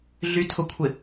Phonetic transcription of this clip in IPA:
ɮ y tʰ ʊ kʷʰ ɪ

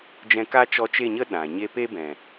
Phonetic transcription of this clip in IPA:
d͡ʒ ɛ̃˧ k a˦ t͡ʃ ɔ˧ t͡ʃ e˦˨ ɲ ə˦ ɗ ã˨ ɲ e˦ p e˦ b ɛ̃˨

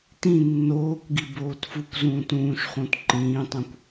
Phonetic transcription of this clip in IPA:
t ĩ nː oː kʷ ɡ i b oː t f u kʷ z ũː t ũː ʃ χ ũ t ǃ ĩː tˤ ũ kʷ

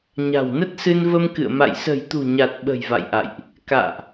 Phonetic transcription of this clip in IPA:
ɲ a̤˨˩ w n ə˦˥ t̚ s ɨ˧ n v ə˧ m k ɨ̰˧˨ ə̯ m a̰˧˨ j s ə̤˨˩ j t̪ ṳ˨˩ ɲ a˨˩ t̚ ɓ ə̤˨˩ j v a̰˧˨ j ʔ a̰˧˨ j ʔ | k a̰ː˧˨ ʔ

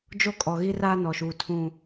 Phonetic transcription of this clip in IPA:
d͡ʒ o˦ kʼ ɔ˨ ɣ i˦ r aː˦ n ɔ˨ ʃ uː˨ tʰ ũ˨

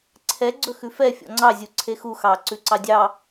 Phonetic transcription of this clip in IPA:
ǀʰ ɛ ɡ͡ǀ ɵ x ʉ f ɛ fʲ ɔ̰ ŋ͡ǀ ɑ zʲ u ǀʰ e x u x ɑ ǀ ʉ ǀ ɑ dʲ ɑ

